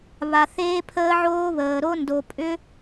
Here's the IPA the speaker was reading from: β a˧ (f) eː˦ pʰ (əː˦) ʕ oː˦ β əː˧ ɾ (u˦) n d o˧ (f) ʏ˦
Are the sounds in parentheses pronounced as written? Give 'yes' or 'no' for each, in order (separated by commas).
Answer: no, yes, no, no